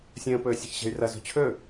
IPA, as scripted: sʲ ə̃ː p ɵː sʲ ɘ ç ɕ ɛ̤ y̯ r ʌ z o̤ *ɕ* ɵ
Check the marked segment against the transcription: incorrect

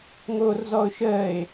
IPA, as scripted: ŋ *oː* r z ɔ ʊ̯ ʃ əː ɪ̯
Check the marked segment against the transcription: correct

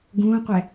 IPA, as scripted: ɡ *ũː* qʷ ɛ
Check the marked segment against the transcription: correct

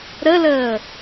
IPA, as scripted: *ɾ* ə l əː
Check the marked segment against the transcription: correct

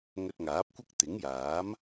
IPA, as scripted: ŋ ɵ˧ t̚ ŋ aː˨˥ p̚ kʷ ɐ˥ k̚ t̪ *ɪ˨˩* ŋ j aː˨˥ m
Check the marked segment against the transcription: incorrect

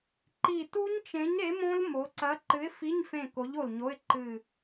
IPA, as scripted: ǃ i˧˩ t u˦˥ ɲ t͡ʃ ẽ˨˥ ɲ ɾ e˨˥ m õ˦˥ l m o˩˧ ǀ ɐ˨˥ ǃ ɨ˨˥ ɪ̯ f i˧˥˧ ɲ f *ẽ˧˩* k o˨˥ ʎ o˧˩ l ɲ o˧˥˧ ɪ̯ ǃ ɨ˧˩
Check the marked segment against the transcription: correct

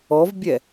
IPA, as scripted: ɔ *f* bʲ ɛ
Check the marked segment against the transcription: incorrect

